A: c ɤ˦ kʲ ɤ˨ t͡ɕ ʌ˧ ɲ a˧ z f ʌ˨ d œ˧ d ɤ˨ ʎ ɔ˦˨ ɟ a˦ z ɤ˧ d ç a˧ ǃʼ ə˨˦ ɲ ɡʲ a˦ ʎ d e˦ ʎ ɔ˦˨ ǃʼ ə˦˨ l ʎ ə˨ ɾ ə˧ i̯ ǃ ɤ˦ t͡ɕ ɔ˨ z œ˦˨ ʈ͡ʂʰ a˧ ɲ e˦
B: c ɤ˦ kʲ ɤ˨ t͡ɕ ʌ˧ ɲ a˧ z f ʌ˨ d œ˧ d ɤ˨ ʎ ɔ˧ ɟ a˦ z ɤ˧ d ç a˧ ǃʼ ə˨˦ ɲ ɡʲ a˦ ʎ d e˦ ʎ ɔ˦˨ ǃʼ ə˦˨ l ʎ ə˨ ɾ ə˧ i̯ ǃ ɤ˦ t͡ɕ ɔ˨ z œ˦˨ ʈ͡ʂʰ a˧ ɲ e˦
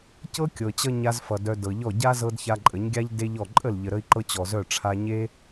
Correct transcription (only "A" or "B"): A